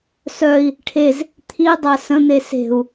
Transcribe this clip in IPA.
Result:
s œ i̯ | ʈʰ e z | t̪ʰ i dˤ a s ə̃ n̪ e s e̤ u̯

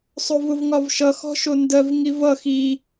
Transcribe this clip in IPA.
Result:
sˤ o v ʊ v ŋ ɒ v ʃ ʌ x ɔ̤ ʃ o n d ɜ v ŋ i v ʌ x i

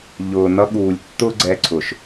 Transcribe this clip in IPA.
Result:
ʎ ʊː˨ n ʌ˧ ɠ uː˨ lʲ tː ʊ˦ ɡ͡ǀ ɛ˧ ǀʰ ʊ˨ ʃ

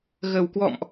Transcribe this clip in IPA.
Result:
ɣ ə˨˩ w k w ɔ̰˧˨ m ʔ

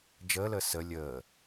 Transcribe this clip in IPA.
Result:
d͡ʒ əː l əː s ə lʲ əː

